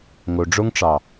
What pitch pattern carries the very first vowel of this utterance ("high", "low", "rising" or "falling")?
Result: low